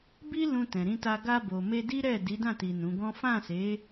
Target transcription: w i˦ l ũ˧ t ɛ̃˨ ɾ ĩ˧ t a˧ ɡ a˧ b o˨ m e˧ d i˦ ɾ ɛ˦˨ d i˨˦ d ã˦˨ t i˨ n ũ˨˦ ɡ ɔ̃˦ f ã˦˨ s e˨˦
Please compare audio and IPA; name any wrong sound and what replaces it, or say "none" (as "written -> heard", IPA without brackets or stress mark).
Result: w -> b